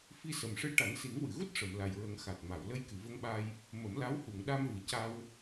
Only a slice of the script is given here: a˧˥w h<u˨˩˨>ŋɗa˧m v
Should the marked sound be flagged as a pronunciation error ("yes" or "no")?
no